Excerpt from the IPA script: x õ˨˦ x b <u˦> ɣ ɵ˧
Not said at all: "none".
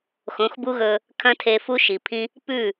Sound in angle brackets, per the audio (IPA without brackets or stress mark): u˦